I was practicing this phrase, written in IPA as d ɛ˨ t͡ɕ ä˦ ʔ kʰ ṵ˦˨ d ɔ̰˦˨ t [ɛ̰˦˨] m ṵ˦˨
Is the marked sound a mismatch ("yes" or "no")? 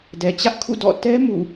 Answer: yes